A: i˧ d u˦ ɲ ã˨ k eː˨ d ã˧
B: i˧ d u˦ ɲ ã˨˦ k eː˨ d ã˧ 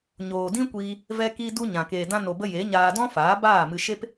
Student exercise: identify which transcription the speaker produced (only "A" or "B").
A